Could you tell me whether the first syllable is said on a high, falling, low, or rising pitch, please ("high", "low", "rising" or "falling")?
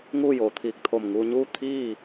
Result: falling